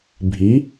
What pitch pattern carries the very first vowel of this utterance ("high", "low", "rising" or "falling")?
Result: rising